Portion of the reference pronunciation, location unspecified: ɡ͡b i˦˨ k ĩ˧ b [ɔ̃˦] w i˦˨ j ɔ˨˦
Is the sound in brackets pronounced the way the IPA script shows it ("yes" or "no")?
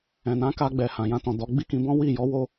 yes